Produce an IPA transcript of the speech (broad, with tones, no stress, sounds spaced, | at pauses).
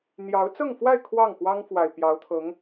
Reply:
n̪ j ɑ˧˥ ʊ̯ t͡s ɤ˥˧ ŋ f w a˥˧ ɪ̯ kʰ w ɑ˥˩ ŋ x w ɑ˥ ŋ f w a˨˩ ɪ̯ p j ɑ˧˥ ʊ̯ t̪ʰ ɤ˧˥ ŋ